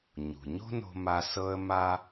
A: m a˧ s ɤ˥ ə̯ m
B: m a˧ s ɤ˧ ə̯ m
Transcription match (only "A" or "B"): B